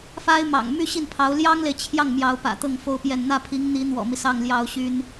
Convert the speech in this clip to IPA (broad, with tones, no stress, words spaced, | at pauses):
fa˥ɪ̯mɑ̰˨˩ŋ my˥ ɕi˥˩n pʰɑ˧˥ʊ̯ ljɑ˥ŋle˨ɪ̯t͡ɕʰjɑ˥˩ŋ mjɑ˧˥ʊ̯ pä̰˨˩t̪ɤ˥˩ŋfo˥ʊ̯pjɛ˥˧n n̪ä˥˩pʰi˧˥ŋn̪i˧˥ n̪wɔ̰˨˩mi˦sɑ˥˩ŋ ljɑ˥ʊ̯ɕy˥n